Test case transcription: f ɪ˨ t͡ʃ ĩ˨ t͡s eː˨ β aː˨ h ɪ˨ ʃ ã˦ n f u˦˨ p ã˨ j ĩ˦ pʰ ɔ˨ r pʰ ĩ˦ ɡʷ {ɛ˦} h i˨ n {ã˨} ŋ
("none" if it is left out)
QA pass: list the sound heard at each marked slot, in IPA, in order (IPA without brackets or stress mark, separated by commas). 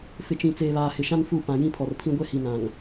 ɛ˦, ã˨